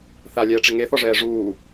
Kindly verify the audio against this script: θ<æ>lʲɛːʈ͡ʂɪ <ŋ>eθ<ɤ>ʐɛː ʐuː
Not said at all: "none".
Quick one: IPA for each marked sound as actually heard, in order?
a, ŋ, ɔ

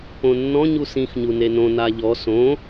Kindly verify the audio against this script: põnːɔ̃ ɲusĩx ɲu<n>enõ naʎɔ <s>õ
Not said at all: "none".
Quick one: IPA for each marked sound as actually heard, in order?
n, s

